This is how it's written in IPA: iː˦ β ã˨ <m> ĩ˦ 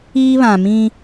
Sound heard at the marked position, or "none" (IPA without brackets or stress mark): m